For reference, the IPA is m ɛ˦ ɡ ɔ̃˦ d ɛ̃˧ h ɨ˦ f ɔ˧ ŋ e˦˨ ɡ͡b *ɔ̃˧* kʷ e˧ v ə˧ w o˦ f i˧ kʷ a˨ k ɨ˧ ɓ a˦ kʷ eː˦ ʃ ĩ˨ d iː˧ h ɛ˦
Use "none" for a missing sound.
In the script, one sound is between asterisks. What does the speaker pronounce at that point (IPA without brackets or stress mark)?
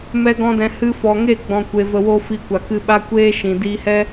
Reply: ɔ̃˧